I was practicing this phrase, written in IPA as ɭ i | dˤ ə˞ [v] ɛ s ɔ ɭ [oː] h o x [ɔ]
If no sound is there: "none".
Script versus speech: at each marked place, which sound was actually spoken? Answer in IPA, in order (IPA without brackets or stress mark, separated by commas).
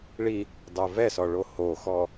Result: v, o, ɔ